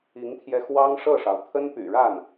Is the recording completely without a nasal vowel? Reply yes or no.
yes